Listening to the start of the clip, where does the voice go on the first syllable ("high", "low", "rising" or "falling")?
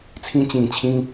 high